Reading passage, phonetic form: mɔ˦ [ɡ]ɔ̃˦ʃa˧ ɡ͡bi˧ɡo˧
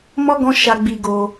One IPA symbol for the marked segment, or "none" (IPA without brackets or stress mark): ɡ